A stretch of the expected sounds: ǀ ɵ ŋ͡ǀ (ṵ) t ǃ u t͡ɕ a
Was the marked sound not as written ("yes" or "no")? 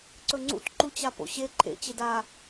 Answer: no